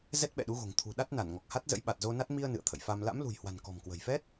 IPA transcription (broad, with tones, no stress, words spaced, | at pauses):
zɛ˦˥t̚ɓɛ̰˧˨ɗu˨˦ɣo̤˨˩ŋ t̪ʰṳ˨˩ ɗa˦˥t̚na˧˩n ŋɔ˨˩k̚ha˦˥t̚zə̰˧˥j ɓa˨˩t̚zo˧na˦˥t̚ mi˧ə̯ nɨ̰˧˨ə̯t̪ʰə̰˧˨j fa˧m la̰˧˥mlṳ˨˩jhwa̤˨˩n kɔ̤˨˩mkwə̤˨˩jfɛ˦˥t̚